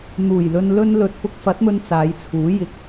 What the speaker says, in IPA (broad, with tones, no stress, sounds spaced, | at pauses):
n̪ uː˨˩ j l ɵ˧ n l ɵ˧ n l ɵ˨ t̚ f ʊ˧ k̚ f ɐ˨˥ t̚ m ɵ˧ n t͡s aː˨˧ j t͡sʰ uː˨˥ j ɪ˨˥ k̚